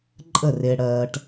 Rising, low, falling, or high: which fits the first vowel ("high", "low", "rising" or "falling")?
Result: falling